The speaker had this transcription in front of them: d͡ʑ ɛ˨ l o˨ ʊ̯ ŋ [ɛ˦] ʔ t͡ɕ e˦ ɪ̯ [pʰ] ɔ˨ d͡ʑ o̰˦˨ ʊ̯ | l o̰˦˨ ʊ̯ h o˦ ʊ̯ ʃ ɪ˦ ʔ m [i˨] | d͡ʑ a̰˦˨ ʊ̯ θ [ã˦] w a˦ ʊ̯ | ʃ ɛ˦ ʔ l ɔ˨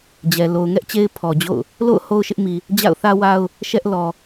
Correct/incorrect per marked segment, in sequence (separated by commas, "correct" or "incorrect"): correct, correct, correct, incorrect